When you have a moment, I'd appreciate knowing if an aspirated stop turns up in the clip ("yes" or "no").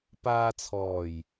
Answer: yes